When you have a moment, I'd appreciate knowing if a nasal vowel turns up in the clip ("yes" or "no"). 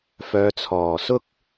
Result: no